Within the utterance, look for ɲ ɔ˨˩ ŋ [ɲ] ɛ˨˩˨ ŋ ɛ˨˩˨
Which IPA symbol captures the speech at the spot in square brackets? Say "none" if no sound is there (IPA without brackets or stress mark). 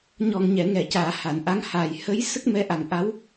ɲ